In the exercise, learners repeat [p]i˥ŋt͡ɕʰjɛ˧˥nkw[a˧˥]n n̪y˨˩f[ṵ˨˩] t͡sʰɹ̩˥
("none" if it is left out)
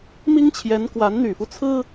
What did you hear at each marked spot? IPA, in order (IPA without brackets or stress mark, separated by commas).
m, a˧˥, u˦